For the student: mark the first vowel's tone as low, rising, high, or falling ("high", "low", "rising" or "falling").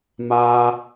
high